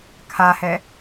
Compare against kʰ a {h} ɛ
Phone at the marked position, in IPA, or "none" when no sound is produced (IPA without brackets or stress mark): h